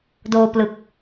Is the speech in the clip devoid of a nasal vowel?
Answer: yes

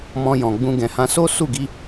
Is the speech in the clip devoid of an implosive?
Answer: yes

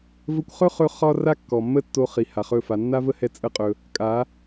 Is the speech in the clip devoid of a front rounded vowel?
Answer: yes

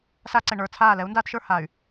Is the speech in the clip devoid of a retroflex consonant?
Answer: no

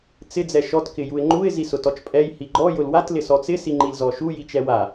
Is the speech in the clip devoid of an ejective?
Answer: no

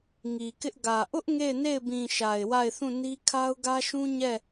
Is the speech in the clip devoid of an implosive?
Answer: yes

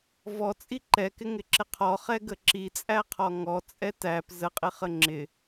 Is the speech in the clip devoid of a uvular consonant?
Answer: no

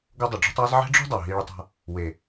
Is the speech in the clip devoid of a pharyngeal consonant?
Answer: no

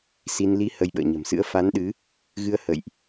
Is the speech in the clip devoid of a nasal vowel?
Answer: yes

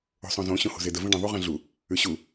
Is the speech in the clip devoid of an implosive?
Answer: yes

